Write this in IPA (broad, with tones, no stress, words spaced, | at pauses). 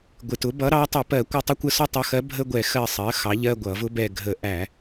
ɡʷɪ˨˩tʊ˩˥ bʌ˩˥ɾɑ˩˥tˤʌ˧˩˧pɜ˧˩˧ kʷɪ˦˨tˤə˥kʷə˧˥˧sɔ˥ tˤʌ˩˥xɜ˩˥bʱə˧˥˧ɡʷɛ˧˩˧ xɜ˦˨sˤɜ˩˥xɑ˩˥ʎɜ˧˥˧ ɡʷʌ˧˩˧vʊ˥bɛ˦˨ ɡʱə˧˩˧ʔæ˧˩˧